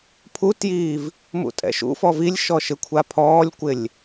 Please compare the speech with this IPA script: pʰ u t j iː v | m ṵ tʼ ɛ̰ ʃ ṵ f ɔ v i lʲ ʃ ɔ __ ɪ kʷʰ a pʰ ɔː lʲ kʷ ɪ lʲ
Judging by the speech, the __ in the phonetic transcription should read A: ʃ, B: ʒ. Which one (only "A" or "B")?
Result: A